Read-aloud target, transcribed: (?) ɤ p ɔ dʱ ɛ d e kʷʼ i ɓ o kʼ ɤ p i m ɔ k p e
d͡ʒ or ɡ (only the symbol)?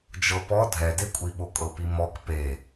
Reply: d͡ʒ